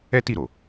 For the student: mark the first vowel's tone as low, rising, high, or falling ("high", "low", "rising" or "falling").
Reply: high